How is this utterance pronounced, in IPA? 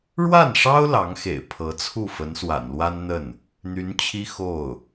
ɻ w a˥˩ n ʂ ɑ˥ ʊ̯ l ɑ˧˥ ŋ x ḛ˨˩ ɪ̯ pʰ ɤ˧˥ t͡sʰ u˥˩ f ə˧˥ n s w a̰˨˩ n l w a˥ n n̪ ə˥˩ n | n̪ y˧˥ n t͡ɕʰ i˥ x o˥˩ ʊ̯

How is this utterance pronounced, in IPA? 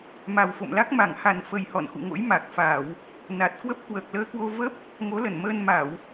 m a˨˩ w f o̰˧˨ m l a˦˥ k̚ m a˧˩ ŋ h a˨˩ n f ə˨˩ j h ɔ̰˧˨ n x ṵ˧˨ ŋ o̰˧˥ j m a˨˩ k̚ f a˧˩˨ w | n a˨˩ t̚ k w ə˦˥ p̚ k w əː˨˩ k̚ l əː˧ k w o˧ v ə˦˥ p̚ | ŋ o˨˦ l ə˧˩ n m əː˧ n m a˧˩˨ w

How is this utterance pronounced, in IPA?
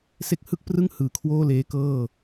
s e˦˥ k̚ h ɯ˥˩ k̚ p r ɯ˥˩ ŋ h ɯː˨˩ kʰ w oː˥˩ l eː˦˥ k ɤː˥˩

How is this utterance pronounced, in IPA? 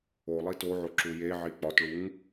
o lˠ i t o ʕ o ǁ u j e ʕ i k͡p ɒ t ɭ u ŋ

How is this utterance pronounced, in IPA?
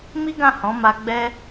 m i˦ ɡ ã˦˨ h ɔ̃˨˦ m a˧ ɡ͡b ɛ˦

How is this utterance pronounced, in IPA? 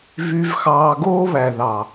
v y˧ v x ɑː˧ ɡ oː˦ β æ˨ ð ɑ˨

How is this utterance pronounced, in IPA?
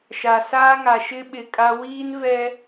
ʃ a˨ s aː˦ ŋ a˨ ʃ ɪ˦ ɓ ɪ˨ kʼ a˦ w iː˦ n v ɛ˦

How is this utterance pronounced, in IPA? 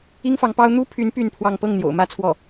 i˥ ŋ f ɑ˧˥ ŋ p ɑ˥ ʊ̯ n̪ u˥ pʰ y˧˥ n p y˥˧ n pʰ w ɑ˥˧ ŋ p ɤ˥˩ ŋ n̪ j o̰˨˩ ʊ̯ m ä˥ t͡sʰ w ɔ˥˩

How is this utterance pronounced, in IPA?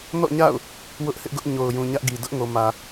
n ɔ̰˦˨ ɲ a̰˦˨ ʊ̯ | w ʊ˦ ʔ h ɪ˦ ʔ ɡ ʊ˦ ʔ ɲ o˨ ʊ̯ j ũ˨ ɲ ä˦ ʔ ɡ i˨ d ʊ˦ ʔ ŋ o˨ m ä˨

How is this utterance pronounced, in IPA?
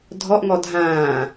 dʱ ɔ ʔ ŋ ɔ dʱ ãː

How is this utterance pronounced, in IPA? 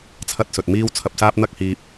t͡sʰ ɐ˥ t̚ s ɵ˨ t̚ m iː˥ w t͡sʰ ɐ˧ p̚ s aː˥ p̚ n̪ ɐ˥ k̚ h iː˧ p̚

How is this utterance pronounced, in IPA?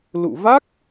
l ṵ˧˨ v a˦˥ k̚

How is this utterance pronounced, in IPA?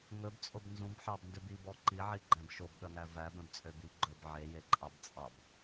ŋ ɵ b t͡sʼ o b n z ũ b ħ ɑ b n d ø b i b ɔ ǃ i ʕ i ɡ͡ǃ æ̃ b ʃ o b ɠ œ ŋ æ v æ b œ̃ b t͡sʼ ø b i ɡ͡ǃ ɵ b ʕ e j e ǃʼ ɑ b t͡sʼ ɑ b

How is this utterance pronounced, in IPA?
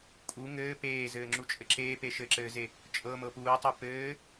kʼ u ŋ ɘː p eː z ɘː ŋ͡ǁ u t͡ʃʼ ɘ ǁ eː p e ʃ ɘ ǁ ɘː z e | t͡ʃʼ ɤ m ɤ p uː tˤ u p ɘː

